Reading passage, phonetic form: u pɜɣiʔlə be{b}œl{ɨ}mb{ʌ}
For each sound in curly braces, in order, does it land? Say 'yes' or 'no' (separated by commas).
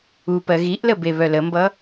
no, no, yes